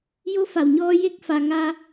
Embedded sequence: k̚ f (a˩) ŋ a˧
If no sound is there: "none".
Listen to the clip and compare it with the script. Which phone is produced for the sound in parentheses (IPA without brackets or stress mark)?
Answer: a˩